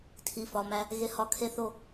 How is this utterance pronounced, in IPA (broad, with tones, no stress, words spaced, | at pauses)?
tʰi˩˧˩fɒ˩˧˩mæ˧ | ɣe˧hɒ˧ kʰe˥˧θo˥˧